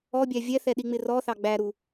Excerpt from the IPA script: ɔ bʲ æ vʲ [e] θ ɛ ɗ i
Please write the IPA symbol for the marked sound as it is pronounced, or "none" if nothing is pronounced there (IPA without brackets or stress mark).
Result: ɛ